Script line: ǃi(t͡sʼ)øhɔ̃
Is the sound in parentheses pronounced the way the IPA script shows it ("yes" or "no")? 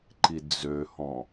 no